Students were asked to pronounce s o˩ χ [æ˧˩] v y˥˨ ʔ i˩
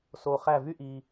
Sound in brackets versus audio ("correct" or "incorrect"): correct